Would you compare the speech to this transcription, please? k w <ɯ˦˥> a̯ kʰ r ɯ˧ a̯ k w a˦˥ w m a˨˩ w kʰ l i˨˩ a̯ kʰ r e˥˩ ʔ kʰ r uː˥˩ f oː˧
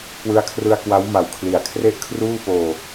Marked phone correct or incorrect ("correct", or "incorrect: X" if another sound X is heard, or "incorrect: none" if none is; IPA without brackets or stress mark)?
correct